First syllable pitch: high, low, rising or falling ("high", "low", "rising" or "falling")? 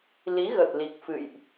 rising